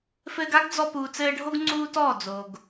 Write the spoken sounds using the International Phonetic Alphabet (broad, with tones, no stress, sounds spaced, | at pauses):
f ɘː˧ ɡ a˦ ɡ d͡z ɔ˧ p uː˨ t͡s ɘː˧ ɖʱ o˦ ɡ ŋ͡ǀ uː˦ t ɔː˦˨ d͡z o˨ ɡ